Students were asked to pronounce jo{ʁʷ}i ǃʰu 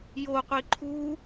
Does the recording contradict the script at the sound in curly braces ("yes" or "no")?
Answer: yes